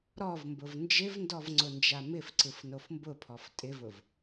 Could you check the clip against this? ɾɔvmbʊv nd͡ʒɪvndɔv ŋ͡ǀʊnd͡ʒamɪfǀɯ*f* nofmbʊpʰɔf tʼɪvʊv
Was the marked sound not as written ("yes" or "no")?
no